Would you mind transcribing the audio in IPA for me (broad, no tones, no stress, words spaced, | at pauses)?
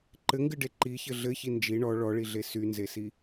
ǃɘŋɡɨɖe ǃiçɘ ɮɘçi nd͡ʒi ɳɔ ɭɔɭiɮe synzesi